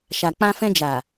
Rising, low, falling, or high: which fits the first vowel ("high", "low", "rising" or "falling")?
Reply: low